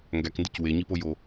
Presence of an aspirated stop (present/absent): absent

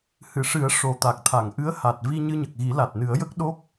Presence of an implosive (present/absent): present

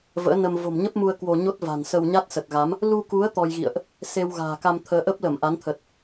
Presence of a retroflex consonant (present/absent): absent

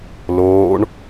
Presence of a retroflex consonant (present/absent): present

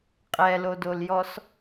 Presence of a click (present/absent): absent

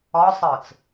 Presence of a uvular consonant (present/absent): absent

